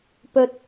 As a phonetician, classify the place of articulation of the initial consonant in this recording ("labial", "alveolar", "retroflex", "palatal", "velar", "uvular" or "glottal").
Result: labial